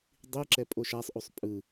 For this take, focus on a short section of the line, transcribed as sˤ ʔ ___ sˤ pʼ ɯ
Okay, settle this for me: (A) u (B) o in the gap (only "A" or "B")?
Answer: A